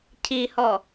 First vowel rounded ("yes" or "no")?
no